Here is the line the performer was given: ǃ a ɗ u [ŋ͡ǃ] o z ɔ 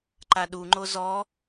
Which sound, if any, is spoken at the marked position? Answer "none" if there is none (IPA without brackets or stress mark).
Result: ŋ͡ǃ